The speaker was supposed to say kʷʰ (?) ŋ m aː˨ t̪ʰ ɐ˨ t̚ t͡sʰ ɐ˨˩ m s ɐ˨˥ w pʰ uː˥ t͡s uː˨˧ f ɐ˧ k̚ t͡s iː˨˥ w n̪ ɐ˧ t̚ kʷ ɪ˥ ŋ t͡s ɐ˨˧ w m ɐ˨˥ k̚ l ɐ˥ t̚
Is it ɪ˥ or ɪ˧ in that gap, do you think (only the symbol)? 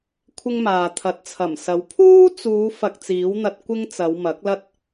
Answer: ɪ˥